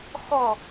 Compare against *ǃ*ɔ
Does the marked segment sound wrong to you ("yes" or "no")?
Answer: yes